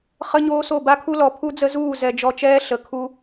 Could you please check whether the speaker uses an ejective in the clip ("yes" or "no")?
no